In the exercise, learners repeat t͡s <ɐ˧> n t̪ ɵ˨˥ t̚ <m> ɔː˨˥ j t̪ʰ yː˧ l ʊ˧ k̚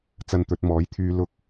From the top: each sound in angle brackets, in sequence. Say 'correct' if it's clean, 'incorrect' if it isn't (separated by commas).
correct, correct